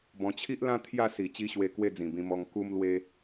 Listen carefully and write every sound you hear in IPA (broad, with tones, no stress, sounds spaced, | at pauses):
b ɔ̃˧ t͡ɕʰ i˦ ʔ l ã˦ t̪ʰ j a˥˧ s i˨˩ t͡ɕ i˦ ɕ w e˧ k w e˥˧ d͡z ĩ˨˩ b ĩ˧ m ɔ˧ ŋ k u˦ m l w e˦